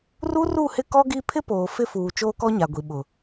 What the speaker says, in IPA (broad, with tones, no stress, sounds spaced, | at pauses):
r u˦ r u˦˨ h ɪ˦ k ɔ˦ ɡ i˦ pʰ ɪ˦ p oː˨ f ɪ˦ f uː˨ t͡ʃ oː˦ k ɔ˦ ɲ a˨ ɡʷ i˨ ɓ ʊ˨